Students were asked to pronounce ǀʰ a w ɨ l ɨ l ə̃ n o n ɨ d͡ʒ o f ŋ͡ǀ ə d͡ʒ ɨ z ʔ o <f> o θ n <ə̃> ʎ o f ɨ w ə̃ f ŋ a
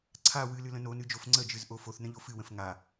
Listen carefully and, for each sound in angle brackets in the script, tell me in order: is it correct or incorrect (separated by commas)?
correct, correct